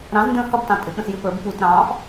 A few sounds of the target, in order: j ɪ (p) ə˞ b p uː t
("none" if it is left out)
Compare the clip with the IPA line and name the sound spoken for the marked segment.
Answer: p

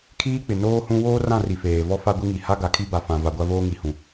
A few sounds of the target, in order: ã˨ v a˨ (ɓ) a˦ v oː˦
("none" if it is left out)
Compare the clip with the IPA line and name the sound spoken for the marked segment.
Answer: ɡʷ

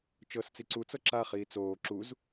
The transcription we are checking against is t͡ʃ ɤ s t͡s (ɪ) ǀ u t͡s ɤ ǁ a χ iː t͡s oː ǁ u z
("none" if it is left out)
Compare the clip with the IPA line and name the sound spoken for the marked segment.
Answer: i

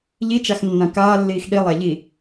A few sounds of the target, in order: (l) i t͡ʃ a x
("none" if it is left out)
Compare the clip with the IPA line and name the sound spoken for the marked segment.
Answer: ʎ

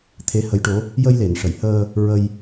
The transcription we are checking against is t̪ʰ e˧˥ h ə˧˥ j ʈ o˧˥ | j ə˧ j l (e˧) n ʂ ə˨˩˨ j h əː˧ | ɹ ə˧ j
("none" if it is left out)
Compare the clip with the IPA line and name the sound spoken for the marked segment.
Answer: e˨˩˨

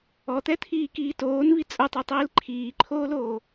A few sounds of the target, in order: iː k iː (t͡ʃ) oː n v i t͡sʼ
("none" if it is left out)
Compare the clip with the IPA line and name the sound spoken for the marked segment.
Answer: t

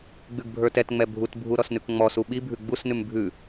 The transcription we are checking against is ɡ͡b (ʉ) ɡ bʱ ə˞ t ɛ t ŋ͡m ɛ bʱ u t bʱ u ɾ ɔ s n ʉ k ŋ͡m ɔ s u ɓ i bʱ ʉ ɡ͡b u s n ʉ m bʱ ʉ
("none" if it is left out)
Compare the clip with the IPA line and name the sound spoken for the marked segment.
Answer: ʉ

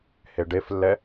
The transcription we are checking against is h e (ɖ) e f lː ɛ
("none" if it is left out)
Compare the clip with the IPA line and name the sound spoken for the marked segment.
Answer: ɖ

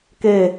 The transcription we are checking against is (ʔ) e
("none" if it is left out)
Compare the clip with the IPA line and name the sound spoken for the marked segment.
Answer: k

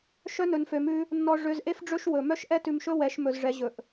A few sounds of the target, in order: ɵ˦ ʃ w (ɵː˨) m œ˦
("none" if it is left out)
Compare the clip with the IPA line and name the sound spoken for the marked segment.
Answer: ɵ˨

